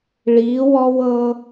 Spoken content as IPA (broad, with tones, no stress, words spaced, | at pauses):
ɭiː˩˧wɔ˧w ɤ˧